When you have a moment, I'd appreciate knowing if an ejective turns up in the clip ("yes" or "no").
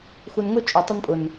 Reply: yes